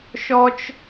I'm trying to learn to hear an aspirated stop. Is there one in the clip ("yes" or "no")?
no